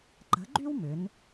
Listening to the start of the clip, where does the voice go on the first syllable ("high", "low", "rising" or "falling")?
rising